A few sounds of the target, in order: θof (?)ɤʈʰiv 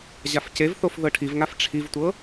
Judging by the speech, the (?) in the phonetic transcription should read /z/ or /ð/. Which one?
ð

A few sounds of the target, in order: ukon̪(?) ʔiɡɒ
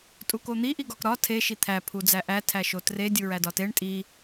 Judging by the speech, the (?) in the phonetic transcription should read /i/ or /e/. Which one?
i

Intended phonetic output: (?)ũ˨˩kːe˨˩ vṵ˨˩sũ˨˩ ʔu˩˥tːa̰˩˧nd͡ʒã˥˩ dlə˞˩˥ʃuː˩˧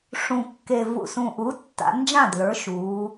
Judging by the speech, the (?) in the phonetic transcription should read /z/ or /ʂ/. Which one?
ʂ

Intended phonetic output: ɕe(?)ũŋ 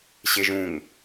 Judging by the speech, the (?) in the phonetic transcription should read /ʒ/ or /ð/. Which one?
ʒ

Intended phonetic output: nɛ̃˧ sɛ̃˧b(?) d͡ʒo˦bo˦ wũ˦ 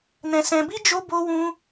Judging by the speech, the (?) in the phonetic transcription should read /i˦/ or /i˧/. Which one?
i˦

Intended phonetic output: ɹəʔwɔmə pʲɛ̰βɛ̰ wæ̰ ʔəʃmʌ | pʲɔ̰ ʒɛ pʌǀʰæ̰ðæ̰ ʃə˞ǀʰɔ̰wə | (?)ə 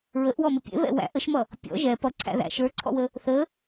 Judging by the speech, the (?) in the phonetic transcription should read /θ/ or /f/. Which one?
θ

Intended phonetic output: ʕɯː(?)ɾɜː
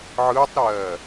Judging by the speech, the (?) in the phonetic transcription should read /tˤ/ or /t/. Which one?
tˤ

